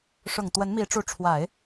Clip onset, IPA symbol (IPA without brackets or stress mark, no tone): ʂ